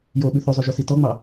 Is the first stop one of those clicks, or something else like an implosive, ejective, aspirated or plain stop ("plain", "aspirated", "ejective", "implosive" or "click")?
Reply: implosive